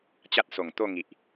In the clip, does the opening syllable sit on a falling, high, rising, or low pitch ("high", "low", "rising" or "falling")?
high